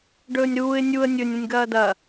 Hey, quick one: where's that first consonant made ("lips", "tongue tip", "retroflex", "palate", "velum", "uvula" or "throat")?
retroflex